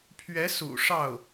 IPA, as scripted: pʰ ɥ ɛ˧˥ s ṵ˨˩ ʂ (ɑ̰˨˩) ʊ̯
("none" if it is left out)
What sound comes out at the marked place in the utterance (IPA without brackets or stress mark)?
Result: ɑ˥˩